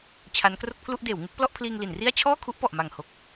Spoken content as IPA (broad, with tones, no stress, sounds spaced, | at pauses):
t͡ɕʰ a˦˥ n k r o˥˩ k̚ pʰ l u˥˩ ʔ d eː˩˦ w ŋ ɯ˥˩ k̚ p l ɔ˥˩ ʔ pʰ l iː˧ ŋ l i˩˦ n r i˥˩ a̯ t͡ɕʰ ɔː˥˩ kʰ u˦˥ ʔ p ɔ˨˩ ʔ m a˨˩ ŋ h o˨˩ k̚